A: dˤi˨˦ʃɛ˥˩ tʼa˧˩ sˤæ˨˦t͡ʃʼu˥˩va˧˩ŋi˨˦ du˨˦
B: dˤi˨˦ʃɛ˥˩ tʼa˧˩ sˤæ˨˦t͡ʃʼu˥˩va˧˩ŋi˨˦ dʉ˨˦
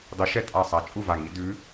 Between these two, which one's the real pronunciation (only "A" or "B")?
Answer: B